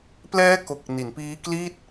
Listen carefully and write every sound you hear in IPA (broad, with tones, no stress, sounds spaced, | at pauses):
p l ɛː˦˥ k o˨˩ k̚ n i˩˦ n p iː˦˥ k l i˥˩ t̚